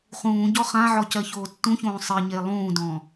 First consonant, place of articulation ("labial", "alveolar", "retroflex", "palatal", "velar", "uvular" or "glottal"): uvular